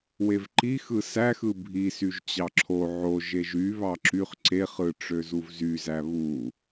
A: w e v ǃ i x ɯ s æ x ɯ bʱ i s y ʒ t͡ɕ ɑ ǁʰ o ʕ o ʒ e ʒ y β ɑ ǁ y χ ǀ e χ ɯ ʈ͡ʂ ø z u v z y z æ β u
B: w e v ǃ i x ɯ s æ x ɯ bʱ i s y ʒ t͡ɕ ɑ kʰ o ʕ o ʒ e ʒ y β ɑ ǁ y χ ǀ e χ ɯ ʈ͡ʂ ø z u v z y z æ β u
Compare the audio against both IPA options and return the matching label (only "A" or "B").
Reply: A